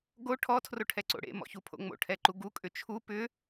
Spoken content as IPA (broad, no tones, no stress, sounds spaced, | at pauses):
ɡ o ʈʰ ɔ tʰ r o ʈʰ ɛ ǀ o̰ ɽ ḛ m ɔ̰ ç u pʰ o̰ ŋ͡m o̰ ʈʰ ɛ ǃ u ɡ u kʼ ʏ t͡ʃʰ u p ʏ